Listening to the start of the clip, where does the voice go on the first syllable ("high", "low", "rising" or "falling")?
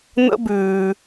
high